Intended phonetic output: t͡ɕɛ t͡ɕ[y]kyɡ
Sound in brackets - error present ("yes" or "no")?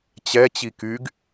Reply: yes